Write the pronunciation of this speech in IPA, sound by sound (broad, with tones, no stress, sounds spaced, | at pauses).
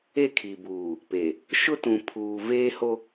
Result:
e˦˨ kʰ i˨ b uː˨ | p e˨ | ʃ ʊ˦ t ũ˨ pʰ uː˨ v eː˦ h o˦